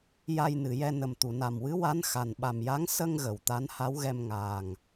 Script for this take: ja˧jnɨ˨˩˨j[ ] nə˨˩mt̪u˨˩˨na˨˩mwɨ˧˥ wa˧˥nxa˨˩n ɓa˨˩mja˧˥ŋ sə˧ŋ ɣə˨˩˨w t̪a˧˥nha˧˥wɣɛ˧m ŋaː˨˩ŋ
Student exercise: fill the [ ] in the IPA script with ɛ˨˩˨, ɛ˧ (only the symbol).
ɛ˧